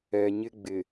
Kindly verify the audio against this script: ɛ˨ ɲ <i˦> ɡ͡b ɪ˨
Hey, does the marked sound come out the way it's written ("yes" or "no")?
no